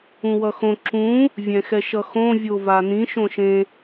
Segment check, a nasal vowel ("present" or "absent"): present